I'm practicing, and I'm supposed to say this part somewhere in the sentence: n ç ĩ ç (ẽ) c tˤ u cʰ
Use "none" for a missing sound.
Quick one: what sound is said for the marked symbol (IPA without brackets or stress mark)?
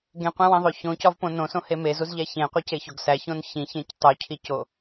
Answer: ẽ